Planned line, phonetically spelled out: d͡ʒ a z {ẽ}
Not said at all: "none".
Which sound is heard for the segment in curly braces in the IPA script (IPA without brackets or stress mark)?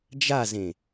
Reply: ẽ